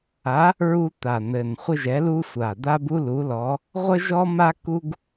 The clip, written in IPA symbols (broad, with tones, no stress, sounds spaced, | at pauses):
a˨˥ | ɹ u˥ t̪ a˨˩ n̪ ɘ˨˩ n χʷ ɪ˥ ʒ ɛ˨˥ l u˥ sʷ a˨˩ d̪ a˥ b u˥ l u˨˥ l ɔ˨˥ | ʁʷ ə˥ ʒ ɔ˥ m a˥ k u˥ ɡ